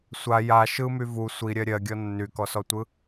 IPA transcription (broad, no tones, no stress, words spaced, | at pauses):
sʷa ja ʃɯmy vu sʷiɾʲɜ ɾʲɜɡʲɔ nːykɔsɔtʷɯ